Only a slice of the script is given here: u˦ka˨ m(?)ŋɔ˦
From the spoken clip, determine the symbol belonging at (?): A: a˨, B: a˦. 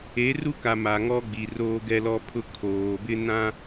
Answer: A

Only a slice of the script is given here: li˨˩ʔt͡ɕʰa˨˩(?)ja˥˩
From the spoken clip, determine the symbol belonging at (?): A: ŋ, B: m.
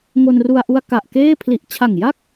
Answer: A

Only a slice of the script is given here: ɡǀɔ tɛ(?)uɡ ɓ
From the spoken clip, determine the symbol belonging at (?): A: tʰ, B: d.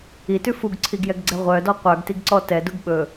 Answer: B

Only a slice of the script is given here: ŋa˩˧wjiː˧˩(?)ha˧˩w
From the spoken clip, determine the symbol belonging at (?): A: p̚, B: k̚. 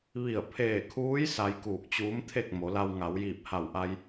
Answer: A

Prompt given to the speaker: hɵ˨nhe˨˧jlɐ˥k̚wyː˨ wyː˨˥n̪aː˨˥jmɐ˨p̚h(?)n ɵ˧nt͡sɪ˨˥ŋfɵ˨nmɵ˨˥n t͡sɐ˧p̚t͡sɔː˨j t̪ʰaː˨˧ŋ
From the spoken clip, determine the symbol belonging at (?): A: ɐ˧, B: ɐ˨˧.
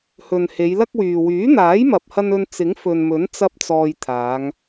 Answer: A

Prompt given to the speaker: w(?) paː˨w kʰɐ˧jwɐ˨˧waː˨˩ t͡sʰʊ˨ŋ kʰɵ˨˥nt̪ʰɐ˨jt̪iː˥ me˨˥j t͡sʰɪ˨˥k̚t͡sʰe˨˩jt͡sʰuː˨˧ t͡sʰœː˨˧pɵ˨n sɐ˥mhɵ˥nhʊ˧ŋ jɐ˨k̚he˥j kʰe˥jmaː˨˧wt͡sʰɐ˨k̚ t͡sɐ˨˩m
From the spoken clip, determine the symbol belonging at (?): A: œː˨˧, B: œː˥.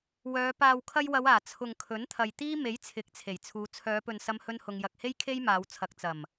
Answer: A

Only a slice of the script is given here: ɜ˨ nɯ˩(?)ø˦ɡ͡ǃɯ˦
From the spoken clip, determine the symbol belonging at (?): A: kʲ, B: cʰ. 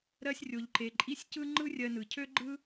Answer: B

